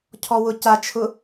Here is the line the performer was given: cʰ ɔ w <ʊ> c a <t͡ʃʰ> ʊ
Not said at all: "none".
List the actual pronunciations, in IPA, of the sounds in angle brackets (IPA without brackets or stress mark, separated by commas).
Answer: ʊ, t͡ʃʰ